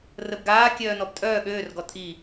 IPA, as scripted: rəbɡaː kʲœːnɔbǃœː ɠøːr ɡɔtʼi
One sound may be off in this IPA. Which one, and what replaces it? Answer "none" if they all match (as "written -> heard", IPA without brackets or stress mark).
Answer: ǃ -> tʼ